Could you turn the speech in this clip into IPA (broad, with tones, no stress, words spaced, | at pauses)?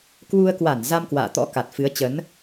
kwu˧ə̯kwa˧˩n za˧mkwa̰ː˧˨t̪ɔ̰˧˥ ka˨˩t̚fɨ˨˦ə̯t͡ɕə˨˦n